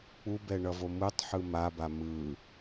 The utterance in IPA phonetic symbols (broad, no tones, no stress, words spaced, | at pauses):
k͡pubɛ ɳʌvomɯtˤħɯ maba mɯ